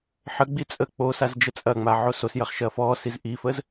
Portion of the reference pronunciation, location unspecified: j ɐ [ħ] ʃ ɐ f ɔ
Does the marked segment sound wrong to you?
yes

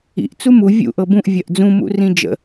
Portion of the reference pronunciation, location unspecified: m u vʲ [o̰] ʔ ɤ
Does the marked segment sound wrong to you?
yes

